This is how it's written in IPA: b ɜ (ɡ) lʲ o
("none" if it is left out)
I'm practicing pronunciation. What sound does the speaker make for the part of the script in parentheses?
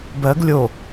ɡ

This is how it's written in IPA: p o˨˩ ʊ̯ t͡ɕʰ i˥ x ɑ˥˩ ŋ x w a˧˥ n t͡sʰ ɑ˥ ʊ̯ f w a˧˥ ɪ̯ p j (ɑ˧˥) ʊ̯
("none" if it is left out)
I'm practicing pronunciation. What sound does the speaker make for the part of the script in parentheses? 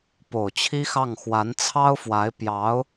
ɑ˧˥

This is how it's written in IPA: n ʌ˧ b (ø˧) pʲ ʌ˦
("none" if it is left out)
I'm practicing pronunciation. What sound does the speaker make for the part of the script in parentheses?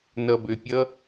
ø˧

